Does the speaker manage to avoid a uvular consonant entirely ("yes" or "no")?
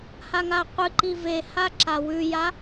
no